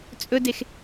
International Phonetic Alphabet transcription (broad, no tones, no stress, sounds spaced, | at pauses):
t͡sʼ ɵ d e x